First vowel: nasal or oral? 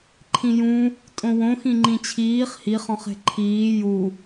nasal